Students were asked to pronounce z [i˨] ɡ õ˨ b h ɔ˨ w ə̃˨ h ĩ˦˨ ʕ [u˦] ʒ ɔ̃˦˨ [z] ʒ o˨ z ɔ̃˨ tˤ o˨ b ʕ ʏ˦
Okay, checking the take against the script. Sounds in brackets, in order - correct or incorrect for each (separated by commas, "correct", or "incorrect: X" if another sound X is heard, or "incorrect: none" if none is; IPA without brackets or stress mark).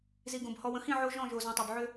correct, incorrect: o˦, incorrect: none